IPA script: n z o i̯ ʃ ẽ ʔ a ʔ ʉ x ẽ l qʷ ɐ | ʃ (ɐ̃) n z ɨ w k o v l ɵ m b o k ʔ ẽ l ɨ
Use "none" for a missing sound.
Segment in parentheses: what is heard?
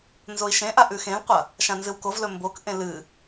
ã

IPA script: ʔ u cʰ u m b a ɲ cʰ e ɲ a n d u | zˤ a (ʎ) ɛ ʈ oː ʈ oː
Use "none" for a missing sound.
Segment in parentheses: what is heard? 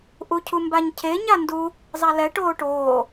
l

